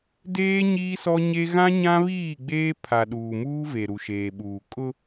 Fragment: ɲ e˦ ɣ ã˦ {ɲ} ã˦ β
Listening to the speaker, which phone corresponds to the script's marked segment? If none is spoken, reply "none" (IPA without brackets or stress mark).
ɲ